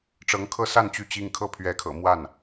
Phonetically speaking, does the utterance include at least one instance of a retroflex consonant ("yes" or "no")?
yes